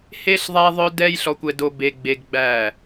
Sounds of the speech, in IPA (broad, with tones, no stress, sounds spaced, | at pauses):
h e˦ ɬ ðˤ æ˦ ðˤ œ˦ d ɛ˦ j ɬ ɔ˦ kʷ ɛ˦ d o˦ b e˦ ɡ͡b e˦ ɡ ɡ͡b æ˦˨